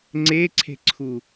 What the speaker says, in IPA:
ŋ͡ǀeǀʰe̤ǀʰu

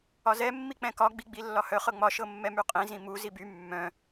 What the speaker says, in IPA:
ɒzɛ mːik͡pɛ̃kɒ ɡ͡biɡ͡bilːɒhœ χɤŋ͡mɒ ʃɤmːɛmyqʼĩ zĩmu ziby mːœ̃

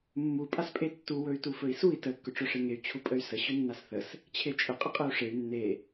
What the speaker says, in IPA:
mːu pʼaspʼetːu wɵy̯tufɵi̯sui̯ tə kːɵʈ͡ʂɵʂeŋey̯ t͡ɕʰupʼəy̯sə ɕɵnːasθəs | t͡ɕʰet͡ʃʼə qʼəqʼeu̯ʂey̯ nːe

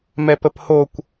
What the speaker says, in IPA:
mɛpəphokʷ

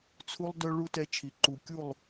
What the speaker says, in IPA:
t͡sʰu˦lˠ dœ˦ɭu˦ tɛ˦t͡ʃʰi˨ ǃu˨kʲu˦˨lˠ

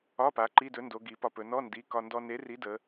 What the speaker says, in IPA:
ɒ˧˥˧pa˩˧ ǃi˧˥˧dɵ˨˥ndo˩˧ ɡi˩˧pɒ˧pɵ˩˧ nɔ˧˥˧ndi˩˧˩ kɒ˧ ndɔ˧ne˨˥ri˨˥ də˩˧

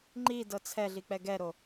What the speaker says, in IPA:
ŋ͡ǃidɤ t͡sʰɛɮik͡pɛ ɡɛɾo

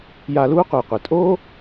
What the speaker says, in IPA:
ja˧luː˥ qʷɨː˩qʷɨ˩ tʼoː˥

